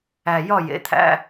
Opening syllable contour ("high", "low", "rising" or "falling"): low